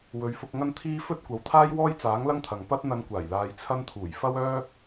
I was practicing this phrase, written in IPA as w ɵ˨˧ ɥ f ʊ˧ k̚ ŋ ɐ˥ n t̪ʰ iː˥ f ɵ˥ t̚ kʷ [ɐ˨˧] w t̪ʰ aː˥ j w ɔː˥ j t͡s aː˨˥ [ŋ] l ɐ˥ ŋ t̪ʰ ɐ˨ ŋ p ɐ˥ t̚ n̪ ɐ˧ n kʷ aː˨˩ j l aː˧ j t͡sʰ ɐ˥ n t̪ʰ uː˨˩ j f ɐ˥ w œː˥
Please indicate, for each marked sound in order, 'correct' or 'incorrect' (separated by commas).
correct, correct